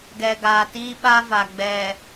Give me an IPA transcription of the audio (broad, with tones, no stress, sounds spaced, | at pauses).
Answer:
ɡ ɛ˨ ɡ aː˨ t iː˦ ɓ a˦ v a˨ ɡ͡b ɛ˨